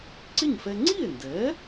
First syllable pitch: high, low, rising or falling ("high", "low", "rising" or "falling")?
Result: falling